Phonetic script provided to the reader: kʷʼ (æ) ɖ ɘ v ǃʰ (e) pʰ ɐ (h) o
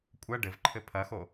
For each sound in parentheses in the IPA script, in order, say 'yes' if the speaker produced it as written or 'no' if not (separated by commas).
no, no, no